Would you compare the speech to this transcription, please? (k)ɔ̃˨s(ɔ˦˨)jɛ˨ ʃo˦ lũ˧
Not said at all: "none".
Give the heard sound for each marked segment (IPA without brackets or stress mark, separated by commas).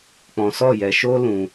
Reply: k͡p, ɔ˦˨